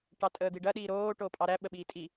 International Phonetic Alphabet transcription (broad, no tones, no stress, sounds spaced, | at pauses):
ʈ ɑ tʼ əː d̪ i ɖ ɐ ɗ iː ɾ oː ʈ oː pʼ ɑ ɾ æ ɓ ə ɓ iː tʼ i